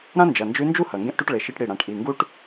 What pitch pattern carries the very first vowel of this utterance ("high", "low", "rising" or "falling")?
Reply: high